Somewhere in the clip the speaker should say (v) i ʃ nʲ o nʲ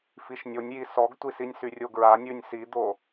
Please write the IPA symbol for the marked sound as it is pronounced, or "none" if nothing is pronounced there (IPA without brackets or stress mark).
f